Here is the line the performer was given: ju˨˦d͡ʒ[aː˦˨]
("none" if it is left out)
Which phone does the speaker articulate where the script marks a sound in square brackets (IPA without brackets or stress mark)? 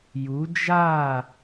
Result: aː˦˨